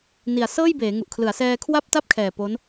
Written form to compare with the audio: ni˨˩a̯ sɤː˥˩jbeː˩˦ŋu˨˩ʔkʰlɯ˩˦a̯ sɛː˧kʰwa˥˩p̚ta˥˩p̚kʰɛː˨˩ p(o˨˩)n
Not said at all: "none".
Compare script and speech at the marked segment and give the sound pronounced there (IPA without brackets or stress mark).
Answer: o˦˥